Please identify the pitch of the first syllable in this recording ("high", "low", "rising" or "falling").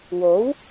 rising